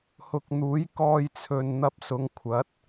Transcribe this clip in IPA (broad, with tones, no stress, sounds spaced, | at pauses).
h ʊ˨ k̚ n̪ uː˨˥ j k ɔː˧ j t͡sʰ ɵ˨ n n̪ ɐ˧ p̚ s ʊ˨˧ ŋ kʷʰ ɐ˨˥ t̚